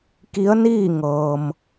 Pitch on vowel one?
rising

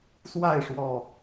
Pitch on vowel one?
falling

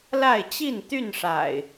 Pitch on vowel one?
falling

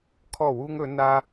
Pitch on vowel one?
falling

